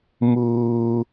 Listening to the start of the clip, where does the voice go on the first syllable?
high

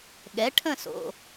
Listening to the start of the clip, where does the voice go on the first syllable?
rising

